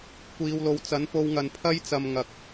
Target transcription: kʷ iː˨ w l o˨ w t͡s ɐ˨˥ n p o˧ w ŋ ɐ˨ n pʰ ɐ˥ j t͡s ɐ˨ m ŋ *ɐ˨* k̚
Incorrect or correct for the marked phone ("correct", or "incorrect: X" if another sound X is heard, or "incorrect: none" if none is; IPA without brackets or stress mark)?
correct